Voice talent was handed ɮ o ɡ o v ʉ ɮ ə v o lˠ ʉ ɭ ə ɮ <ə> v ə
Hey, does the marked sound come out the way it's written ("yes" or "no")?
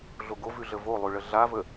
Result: no